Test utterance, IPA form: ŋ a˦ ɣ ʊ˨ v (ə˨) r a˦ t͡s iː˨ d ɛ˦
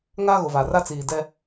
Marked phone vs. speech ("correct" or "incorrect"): incorrect